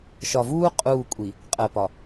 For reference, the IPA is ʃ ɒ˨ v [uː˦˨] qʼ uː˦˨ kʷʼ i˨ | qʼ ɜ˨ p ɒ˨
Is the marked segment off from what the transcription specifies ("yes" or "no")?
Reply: yes